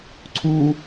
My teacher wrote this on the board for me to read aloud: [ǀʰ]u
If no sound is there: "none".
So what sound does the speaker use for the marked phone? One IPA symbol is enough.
ǀʰ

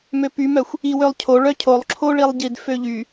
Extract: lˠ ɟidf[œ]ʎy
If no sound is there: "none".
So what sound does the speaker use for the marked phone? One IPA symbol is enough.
ø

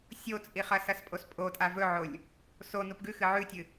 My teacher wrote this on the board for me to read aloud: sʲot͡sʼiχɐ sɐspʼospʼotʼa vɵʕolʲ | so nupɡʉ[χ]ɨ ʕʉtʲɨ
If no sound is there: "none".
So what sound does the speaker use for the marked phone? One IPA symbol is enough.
x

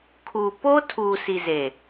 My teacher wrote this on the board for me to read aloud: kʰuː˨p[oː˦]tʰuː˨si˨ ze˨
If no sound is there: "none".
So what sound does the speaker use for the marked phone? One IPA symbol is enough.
oː˦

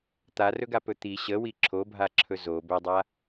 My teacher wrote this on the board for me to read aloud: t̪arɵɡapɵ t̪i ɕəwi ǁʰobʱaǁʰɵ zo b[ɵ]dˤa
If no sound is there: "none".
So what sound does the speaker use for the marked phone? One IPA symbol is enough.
ɵ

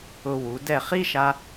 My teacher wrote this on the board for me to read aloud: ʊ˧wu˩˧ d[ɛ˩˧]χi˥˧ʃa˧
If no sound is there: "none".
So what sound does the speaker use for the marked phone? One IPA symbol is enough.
ɛ˧˩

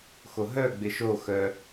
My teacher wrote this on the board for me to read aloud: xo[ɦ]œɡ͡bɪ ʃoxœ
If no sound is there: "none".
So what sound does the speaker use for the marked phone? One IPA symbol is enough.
ɦ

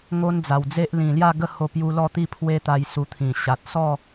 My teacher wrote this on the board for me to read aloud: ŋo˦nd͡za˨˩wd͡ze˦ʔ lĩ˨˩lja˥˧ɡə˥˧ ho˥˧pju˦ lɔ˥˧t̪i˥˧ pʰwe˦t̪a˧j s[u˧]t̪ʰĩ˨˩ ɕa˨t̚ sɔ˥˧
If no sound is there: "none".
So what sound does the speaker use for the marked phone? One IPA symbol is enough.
u˧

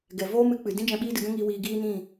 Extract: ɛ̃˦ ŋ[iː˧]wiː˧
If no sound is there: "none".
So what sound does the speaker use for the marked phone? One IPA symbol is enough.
iː˧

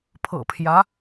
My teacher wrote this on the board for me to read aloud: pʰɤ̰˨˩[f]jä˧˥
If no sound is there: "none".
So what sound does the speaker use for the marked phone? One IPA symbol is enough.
pʰ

